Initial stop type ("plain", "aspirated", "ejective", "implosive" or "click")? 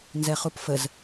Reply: plain